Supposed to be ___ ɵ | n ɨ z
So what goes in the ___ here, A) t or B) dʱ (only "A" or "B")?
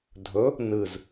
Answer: B